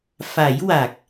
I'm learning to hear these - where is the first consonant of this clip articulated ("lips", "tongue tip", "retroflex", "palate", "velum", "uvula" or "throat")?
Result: lips